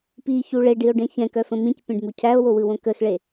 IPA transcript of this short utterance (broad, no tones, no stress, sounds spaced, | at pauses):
p i ç u ɭ e ɖ i o̯ ɖ ẽ ç ɛ̃ k œ f ə̃ m ĩ c pʲ ẽ ɖ m u cʰ æ o̯ w o w ɯ w õ k ə x ɭ e